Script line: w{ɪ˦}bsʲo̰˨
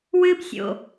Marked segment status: incorrect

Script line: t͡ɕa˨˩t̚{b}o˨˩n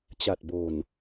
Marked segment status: correct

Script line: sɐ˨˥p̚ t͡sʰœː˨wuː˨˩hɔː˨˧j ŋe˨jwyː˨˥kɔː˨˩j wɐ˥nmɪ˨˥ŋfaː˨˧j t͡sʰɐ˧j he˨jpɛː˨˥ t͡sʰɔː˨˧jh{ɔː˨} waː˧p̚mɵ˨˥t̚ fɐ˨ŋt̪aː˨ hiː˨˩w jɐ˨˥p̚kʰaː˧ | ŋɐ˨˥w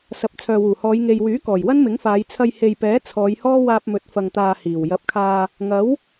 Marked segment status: incorrect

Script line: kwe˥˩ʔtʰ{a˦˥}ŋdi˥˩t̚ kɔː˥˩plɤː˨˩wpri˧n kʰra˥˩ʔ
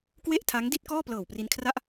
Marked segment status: correct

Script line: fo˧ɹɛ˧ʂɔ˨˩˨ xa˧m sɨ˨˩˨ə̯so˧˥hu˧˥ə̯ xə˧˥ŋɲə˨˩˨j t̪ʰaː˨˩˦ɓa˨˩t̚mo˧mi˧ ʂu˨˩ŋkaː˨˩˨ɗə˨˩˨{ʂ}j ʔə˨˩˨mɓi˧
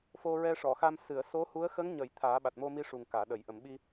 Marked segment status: incorrect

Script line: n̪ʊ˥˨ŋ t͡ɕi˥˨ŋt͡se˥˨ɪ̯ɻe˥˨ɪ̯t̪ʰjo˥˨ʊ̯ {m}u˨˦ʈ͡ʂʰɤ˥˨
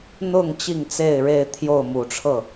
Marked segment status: correct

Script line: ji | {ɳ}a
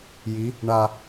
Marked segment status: correct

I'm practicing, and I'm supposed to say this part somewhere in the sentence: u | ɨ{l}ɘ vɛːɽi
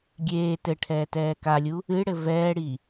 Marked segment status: incorrect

